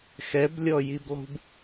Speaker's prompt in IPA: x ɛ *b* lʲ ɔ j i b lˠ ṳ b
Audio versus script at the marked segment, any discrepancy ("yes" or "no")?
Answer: no